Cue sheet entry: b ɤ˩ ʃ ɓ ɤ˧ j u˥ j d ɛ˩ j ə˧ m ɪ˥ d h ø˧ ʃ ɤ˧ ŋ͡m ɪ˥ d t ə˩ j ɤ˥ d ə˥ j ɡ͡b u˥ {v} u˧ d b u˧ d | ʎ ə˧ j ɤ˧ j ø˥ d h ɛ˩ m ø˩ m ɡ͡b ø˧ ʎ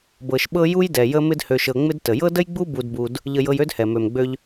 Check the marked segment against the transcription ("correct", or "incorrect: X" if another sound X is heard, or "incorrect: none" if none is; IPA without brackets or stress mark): incorrect: b